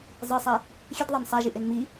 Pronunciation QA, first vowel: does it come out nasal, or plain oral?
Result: oral